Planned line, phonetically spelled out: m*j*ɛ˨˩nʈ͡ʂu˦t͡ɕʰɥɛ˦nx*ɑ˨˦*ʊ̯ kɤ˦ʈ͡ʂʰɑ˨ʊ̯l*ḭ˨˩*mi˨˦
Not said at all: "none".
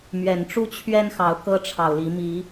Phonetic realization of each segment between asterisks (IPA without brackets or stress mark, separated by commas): ɥ, ɑ˨˦, i˨˦